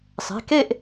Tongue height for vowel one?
mid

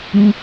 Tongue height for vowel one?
high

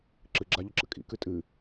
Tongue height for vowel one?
high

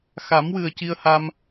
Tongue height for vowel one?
low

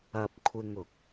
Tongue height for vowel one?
low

